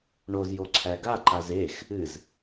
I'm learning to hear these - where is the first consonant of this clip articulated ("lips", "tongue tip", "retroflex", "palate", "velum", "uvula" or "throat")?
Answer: retroflex